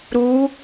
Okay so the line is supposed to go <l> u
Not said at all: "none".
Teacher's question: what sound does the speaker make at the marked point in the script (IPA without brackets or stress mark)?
ɾ